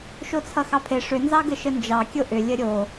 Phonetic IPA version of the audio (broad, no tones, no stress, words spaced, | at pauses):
ʃot͡sʰʌxɑpʰe ʂʏ nzɑɡəʃənd͡ʒɑ kʲoʔʏ lʲəɾʲo